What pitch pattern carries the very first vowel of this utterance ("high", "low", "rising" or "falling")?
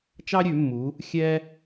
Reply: high